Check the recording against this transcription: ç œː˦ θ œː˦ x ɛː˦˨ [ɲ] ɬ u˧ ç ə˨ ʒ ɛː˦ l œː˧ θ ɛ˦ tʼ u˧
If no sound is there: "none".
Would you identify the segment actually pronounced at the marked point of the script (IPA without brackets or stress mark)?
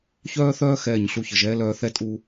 ɲ